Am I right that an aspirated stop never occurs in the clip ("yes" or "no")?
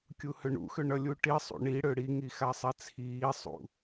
no